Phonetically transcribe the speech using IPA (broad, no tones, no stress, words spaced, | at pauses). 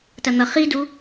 tɐn̪ʌ χidu